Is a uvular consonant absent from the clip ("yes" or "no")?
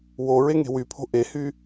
yes